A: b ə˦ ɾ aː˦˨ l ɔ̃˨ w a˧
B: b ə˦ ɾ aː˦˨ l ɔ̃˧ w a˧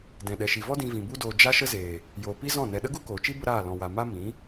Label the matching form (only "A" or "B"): B